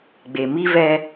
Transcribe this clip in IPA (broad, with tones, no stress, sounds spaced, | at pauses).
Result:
ɡ͡b e˨ m i˦ v ɛ˦